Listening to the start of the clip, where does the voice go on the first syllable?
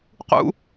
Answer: high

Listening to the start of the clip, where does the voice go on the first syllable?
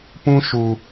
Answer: high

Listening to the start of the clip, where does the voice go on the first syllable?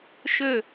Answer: falling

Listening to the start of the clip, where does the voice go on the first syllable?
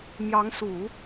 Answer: rising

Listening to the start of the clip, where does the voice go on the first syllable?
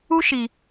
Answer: high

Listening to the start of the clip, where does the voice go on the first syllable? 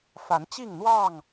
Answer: rising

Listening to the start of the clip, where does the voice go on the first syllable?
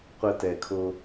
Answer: low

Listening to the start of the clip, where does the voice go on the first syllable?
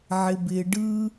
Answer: high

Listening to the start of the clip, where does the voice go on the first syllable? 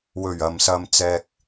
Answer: low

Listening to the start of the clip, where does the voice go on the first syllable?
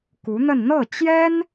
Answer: rising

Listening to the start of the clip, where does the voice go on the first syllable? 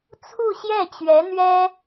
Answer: falling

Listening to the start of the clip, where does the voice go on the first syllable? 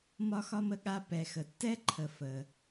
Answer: high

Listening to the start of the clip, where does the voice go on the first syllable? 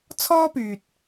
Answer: high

